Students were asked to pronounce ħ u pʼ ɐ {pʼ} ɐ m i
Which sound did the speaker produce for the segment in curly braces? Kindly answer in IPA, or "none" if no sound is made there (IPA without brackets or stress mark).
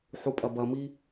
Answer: b